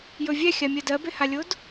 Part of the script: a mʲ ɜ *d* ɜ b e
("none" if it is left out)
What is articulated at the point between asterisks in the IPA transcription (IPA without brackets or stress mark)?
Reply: d